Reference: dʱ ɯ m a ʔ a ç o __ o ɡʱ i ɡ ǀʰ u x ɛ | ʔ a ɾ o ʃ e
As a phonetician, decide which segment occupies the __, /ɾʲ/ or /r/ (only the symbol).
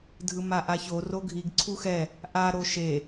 r